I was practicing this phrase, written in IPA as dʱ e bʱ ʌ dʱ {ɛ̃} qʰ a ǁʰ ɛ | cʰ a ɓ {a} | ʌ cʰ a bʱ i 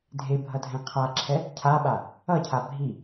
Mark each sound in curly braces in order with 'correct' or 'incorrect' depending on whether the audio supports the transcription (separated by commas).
correct, correct